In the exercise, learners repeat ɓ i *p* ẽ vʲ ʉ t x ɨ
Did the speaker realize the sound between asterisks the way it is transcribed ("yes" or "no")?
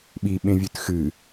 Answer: no